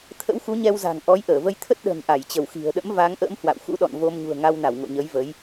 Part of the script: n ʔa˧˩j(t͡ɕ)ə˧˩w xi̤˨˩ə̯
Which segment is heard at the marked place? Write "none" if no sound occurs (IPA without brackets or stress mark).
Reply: t͡ɕ